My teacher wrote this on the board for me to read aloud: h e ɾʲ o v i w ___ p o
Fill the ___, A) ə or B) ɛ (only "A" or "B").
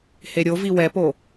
B